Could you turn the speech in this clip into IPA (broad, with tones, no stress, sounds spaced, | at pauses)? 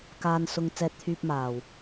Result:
k aː˨ n s ʊ˨ ŋ t͡s ɛː˧ t̚ t̪ʰ yː˧ p̚ m aː˨˩ w